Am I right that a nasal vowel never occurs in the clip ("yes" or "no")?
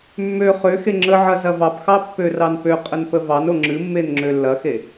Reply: yes